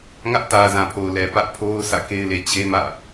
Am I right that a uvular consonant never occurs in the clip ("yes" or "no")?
yes